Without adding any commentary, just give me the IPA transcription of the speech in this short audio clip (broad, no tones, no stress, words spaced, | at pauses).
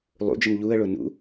lˠṵd͡ʒəm ʎuə̯ɭʊ nṵ